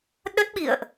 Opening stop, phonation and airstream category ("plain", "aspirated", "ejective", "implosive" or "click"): implosive